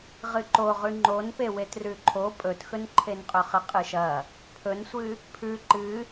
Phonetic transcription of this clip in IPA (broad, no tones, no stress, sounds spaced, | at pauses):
ʁ ɨ ǃ o ʁ ʉ ŋ͡ǃ o n p e w e t r ʉ ǃʰ o pʼ ɵ t x ɵ n ǃʰ e n qʼ ɵ χ ɨ qʼ ɨ ʃ ɐ | pʰ ɵ n sʷ ɨ | pʰ ʉ ǃ ɨ